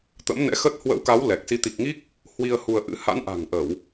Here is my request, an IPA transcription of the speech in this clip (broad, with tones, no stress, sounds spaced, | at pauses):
t̪ ə̰˧˥ m n ɛ̰˧˥ x ə˦˥ t̚ h w ə̰˧˥ w k a˨˦ w l ɛ˨˩ k̚ s i˨˦ t̪ i˨˩ k̚ ŋ i˦˥ k̚ | h w i˧ ə̯ h u˧ ə̯ ʔ ɨ̰˧˥ h a̰˧˥ n ʔ a̤˨˩ ŋ ʔ ə˧˩˨ w